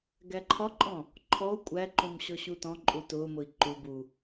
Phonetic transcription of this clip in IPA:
ɡ æ ǃʰ ɒ ǃʼ ɔ̃ | ǃʰ ɔ u̯ kʷʼ æ ǃ ũ m ɕ ɔ ɕ u t ɔ̃ ǃʼ u t ʊː m ʊ i̯ ǃ u b u

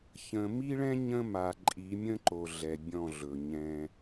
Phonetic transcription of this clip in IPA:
ç ə̃˨ m i˦ ɭ ɛ̃˦ ɲ ə̃˦ m a˨ ǃʼ i˨˦ mʲ ə̃˦ ǃ o˨ ɮ ɛ˨ bʲ ɔ̃˦˨ ɮ ɵ˨ ɲ ɛ̃˦

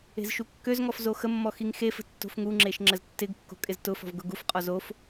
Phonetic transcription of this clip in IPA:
e̤ z ʃ u kː ø z ŋ ɔ f z o x ə mː ɔ x i ŋ x e f ə̤ tː o̤ f ŋ u ŋ͡ǁ e ʃ ŋ͡ǁ ə z tː ɪ ɡ kː o̤ kʼ ɪ z t ʊ f ɔ̤ v ɡ ʊ ɡ u f qʼ ɔ z o f

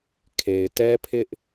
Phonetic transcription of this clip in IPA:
kʰ e˨ ɪ̯ t ɛ˦ pʰ ɪ˦ ʔ

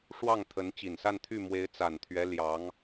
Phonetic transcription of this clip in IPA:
ʂ w ɑ˥˩ ŋ t̪ʰ ə˧˥ n t͡ɕ i˨˩ n s a˥˧ n t̪ʰ y˥˩ m w e˧˥ ɪ̯ t͡s a˨˩ n t̪ʰ ɥ ɛ˧˥ l j ɑ˧˥ ŋ

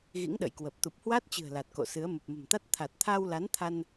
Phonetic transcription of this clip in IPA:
ɣ ḭ˧˥ ŋ ɗ ə̰˧˨ j k w ə˨˩ p̚ t̪ u˨˩ p̚ h w a˦˥ t̚ t͡ɕ ɨ̤˨˩ ə̯ l a˨˩ t̚ k o̰˧˨ s ɨ˨˦ ə̯ m ə˨˩ p̚ m ə̤˨˩ m t̪ a˦˥ t̚ t̪ʰ a˨˩ t̚ t̪ʰ aː˧ w l a˨˦ n t̪ʰ a˧ n

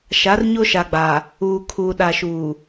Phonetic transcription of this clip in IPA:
ʃ a˨˦ r ɲ o˦ ʃ a˨ ɡ͡b a˨ | uː˨ kʰ uː˨ ɗ a˨ ʃ uː˨

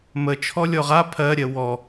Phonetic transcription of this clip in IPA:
m ə t͡ʃʰ ɔ lʲ ɔ ʁ a pʰ ɜ ɾʲ ɜ w ɔ

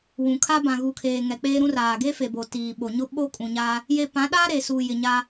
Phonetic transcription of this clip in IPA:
w ũ˨ kʰ a˦ b ã˨ ɣ u˨ kʰ eː˨ ŋ ɛ˨ k͡p eː˦ ɾ ũ˦ r aː˨ ɡ e˦ f e˨ b o˨ t iː˨ ɓ o˨ ɲ ʊ˦ ɓ o˦ kʼ ũ˨ ɲ a˦ | j e˨ p ã˨˦ ɗ aː˦ ɾ e˨ s u˨ j ɪ˨ ɲ a˦

